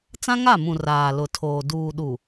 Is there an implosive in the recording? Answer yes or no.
yes